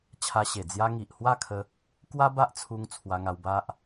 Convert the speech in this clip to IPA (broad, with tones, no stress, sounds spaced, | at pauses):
t͡ɕʰ a˧ ɕ e˨˩ d͡z j a˧ ŋ i˨ ʔ h w a˥˧ kʰ ə˦ | k w a˦ b a˦ ʔ t͡sʰ u˧ ŋ t͡sʰ w a˧ ŋ a˧ w b a˦ ʔ